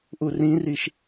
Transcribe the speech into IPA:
ʔ u r ĩ r i ʃ

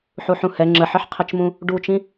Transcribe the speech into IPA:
ħ u ħ ũ h ɛ ŋ͡ǁ ə ħ ɘ ħ qʰ ɘ t͡ʃ m ũ | ɖ u t͡ʃ ĩ

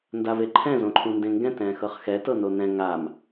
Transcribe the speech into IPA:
n d a v e ǃʰ ɛ̃ z õ ǃʰ ũ n d ẽ ŋ ɡ ɛ̃ t ɛ̃ x ɤ χ x ɛ t ɤ n o n ɛ̃ ŋ a m

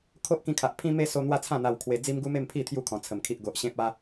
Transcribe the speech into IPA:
kʰ o˦ ʔ k ĩ˧ kʰ a˨ ʔ pʰ ĩ˧ m e˧ s o˦ n̪ w a˦ t͡sʰ ã˥˧ n̪ a˧ w kʰ w e˧ d͡z i˦ m ɡ u˦ m e˥˧ m pʰ i˥˧ t̪ʰ j u˥˧ kʰ ɔ̃˨˩ t͡sʰ ə˨˩ m kʰ i˨ ʔ ɡ o˨ ʔ ɕ ẽ˦ p̚ a˦

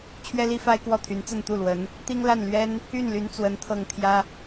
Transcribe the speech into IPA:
t͡ɕʰ ɥ ɛ˥ l i˥ f a˥ ɪ̯ k w ɔ˥˩ t̪ʰ y˧˥ n t͡s ə˥˧ n t̪ u˥˩ l w ə˧˥ n | t̪ i˥ ŋ l a˥˩ n l ɥ ɛ˥ n | y˥˩ n l y˧˥ n t͡s w ə˧˥ n t̪ʰ ɤ˥˩ ŋ t̪ʰ j ä˥

